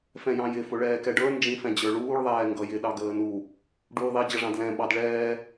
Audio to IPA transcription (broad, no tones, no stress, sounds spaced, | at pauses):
f ɛ̃ j ɑ̃ j ɪ f ʊ ɭ ɛː k ɛ ɖ ə˞ n d͡ʒ ĩ f ɛ̃ d͡ʑ ə˞ ɭ uː ɭ ðˤ ɛː ŋ ɡ ʌ j ɪ ɗ ɑ ɡ əː n u | ɖ uː ðˤ i d͡ʑ ʌ ʐ ɑ̃ d l ɛ̃ ɓ ɑ d ɭ ɛː